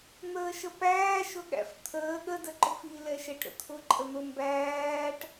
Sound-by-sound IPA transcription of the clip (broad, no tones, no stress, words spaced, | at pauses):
n̪əːʃəpæː ʃʊɠæ̰ft̪ʰəː ɠə dəǃʊfi lɛʃɛʈɾə̰t̪ʰʊ ǃʼən̪ʊ mbæːʈ